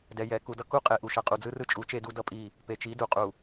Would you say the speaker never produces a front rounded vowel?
yes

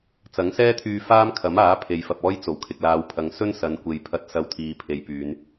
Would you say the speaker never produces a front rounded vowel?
no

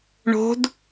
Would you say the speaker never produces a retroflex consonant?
no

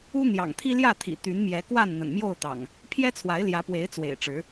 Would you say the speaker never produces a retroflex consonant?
no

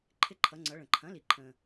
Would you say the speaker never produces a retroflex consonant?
no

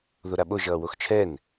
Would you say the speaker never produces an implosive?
no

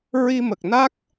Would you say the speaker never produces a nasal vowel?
yes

